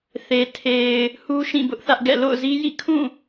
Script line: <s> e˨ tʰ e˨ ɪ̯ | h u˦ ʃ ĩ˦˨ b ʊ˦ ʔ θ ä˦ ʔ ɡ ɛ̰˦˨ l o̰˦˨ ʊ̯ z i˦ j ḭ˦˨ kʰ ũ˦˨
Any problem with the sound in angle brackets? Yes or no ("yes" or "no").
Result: yes